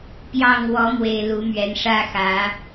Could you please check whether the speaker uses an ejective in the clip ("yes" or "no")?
no